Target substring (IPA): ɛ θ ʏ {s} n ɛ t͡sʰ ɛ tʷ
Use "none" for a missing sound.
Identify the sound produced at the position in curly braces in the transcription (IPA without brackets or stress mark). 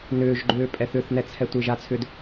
θ